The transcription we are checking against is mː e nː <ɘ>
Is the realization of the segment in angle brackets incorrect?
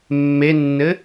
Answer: no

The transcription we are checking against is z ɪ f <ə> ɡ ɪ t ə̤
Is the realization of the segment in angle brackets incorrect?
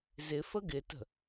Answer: no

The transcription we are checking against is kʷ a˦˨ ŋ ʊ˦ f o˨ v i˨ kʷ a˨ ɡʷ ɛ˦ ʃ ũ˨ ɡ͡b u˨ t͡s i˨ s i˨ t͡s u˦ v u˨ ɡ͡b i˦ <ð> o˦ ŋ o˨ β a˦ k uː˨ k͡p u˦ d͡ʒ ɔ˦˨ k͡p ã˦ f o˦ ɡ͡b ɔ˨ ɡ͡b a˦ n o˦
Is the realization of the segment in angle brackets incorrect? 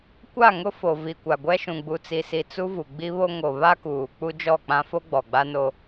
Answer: yes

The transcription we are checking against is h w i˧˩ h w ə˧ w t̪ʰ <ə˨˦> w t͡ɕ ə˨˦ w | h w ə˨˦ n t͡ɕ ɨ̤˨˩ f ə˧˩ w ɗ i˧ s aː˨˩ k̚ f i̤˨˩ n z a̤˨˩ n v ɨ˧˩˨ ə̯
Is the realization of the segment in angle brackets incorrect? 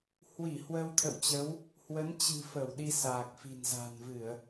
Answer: yes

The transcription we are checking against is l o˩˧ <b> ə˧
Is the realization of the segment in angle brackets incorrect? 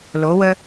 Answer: yes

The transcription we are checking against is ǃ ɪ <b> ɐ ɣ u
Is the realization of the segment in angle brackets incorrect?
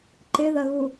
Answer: yes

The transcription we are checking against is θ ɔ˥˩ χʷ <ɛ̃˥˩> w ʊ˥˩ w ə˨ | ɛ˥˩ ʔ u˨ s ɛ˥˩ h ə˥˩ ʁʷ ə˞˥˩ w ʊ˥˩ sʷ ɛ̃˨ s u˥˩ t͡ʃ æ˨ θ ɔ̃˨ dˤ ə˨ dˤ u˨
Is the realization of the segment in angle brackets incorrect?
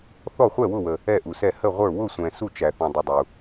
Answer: yes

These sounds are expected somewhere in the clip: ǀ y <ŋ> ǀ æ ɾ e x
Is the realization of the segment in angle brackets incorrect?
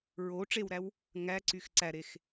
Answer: yes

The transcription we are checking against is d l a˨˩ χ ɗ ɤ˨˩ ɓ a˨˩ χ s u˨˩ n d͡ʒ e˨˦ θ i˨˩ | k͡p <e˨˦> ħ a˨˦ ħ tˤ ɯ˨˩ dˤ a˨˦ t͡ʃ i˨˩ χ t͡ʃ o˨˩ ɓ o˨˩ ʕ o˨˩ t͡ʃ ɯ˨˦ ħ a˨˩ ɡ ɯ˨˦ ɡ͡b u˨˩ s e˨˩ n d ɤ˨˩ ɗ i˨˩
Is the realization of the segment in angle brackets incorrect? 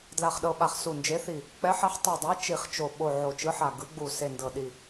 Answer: yes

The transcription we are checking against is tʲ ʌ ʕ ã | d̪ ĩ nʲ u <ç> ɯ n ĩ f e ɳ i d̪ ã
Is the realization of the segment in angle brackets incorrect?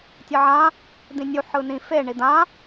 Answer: yes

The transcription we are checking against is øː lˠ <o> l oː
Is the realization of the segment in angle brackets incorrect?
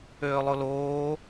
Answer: no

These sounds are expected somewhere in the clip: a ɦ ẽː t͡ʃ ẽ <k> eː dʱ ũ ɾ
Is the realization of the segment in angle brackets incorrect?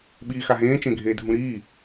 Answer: yes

